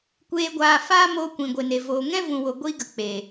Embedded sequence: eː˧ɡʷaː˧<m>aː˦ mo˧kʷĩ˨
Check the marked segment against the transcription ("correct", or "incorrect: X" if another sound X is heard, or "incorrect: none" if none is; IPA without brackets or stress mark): incorrect: f